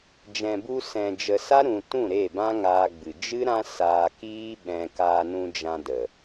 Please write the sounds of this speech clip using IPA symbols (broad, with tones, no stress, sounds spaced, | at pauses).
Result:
d͡ʒ ɛ̃˨ b u˧ s ɛ̃˨ d͡ʒ ə˨ s a˦ ɾ ũ˨ t ũ˦˨ ɾ e˦˨ b ã˦ ŋ aː˧ ɡ͡b ɨ˨ d͡ʒ ɨ˦ ɾ ã˦ s aː˧ k iː˦ ɓ ɛ̃˧ k aː˧ n ũ˧ d͡ʒ ã˧ d ə˨